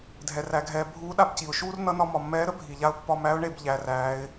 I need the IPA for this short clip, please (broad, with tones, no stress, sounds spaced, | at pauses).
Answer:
dʱ ɛ˩ r æ˩˧ ɡʱ ɛː˩˧ bʱ uː˧˥ ɗ a˧ b c i˩ ʊ̯ ʃ uː˥ r n ʌ˧˥ n ɒ˧ m ɒ˩ mː ɛː˧˥ ɾ ə˥ bʱ i˩ ʎ a˧ ʊ̯ pː ɒ˧ m æ˧˥ ʊ̯ ɳ e˩˧ b ʎ æ˩˧ r æː˩˧ ɪ̯